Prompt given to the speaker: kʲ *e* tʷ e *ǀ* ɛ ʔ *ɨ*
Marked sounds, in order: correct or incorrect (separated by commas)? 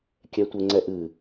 incorrect, incorrect, correct